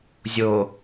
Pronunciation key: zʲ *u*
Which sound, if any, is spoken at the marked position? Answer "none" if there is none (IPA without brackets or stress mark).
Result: o